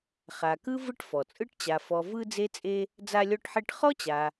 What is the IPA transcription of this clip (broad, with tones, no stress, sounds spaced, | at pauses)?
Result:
χ a˨ k ɯ˥ v ɯ˥ ʈ f ɔ˩ t͡sʼ ɯ˥ ʈ t͡ɕ a˨ f ɔ˨ v ɯ˦ d͡z e˥ t͡sʼ e˥ | d͡z a˦ lʲ ɔ˦ ʈ ħ e˦ ʈ χ ɔ˥ t͡ɕ a˨